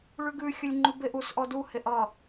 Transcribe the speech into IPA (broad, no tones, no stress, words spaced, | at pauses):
ɭʉɡʉxʲəlʲ ŋ͡ǃʉbeʔusʔɔ duheʔ ʌ